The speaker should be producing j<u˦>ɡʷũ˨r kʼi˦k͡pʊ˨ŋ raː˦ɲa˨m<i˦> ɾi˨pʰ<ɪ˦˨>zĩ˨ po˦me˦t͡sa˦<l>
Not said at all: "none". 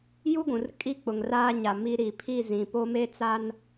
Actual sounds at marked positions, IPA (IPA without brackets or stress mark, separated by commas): u˦, i˦, i˦˨, n